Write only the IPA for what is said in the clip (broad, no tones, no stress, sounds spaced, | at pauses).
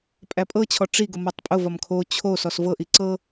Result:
pʼ æ pʼ ɤ t͡ɕʰ ɔ ʈ͡ʂ i ɡ ʊ m ɔ tˤ pʼ ʊ v ɒ m kʰ o t͡ɕʰ o s ɔ s v ɤ ʔ i ǀ ɤ